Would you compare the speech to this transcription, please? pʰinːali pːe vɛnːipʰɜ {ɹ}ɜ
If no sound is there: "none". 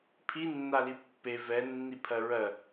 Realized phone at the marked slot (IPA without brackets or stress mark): ɹ